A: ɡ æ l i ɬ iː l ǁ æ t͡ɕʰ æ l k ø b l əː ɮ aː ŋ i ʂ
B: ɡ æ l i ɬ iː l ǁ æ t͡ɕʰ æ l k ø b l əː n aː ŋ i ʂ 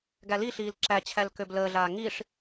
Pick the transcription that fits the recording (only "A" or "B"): A